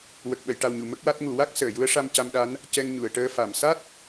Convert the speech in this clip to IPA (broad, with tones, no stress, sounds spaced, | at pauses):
w ə˨˩ k̚ ɓ ə˨˩˨ j ʈ a˨˩ w ɲ u˨˩˨ m ə˦˥ k̚ w a˦˥ t̚ ŋ u˨˩˦ w a˦˥ k̚ s əː˨˩˨ j u˧˥ ə̯ ʂ a˧ m c a˧ m ɗ a˧˥ n | c ɛ˧ ŋ ɲ u˨˩˨ ə̯ ʈ əː˧ f a˨˩˨ m s a˦˥ t̚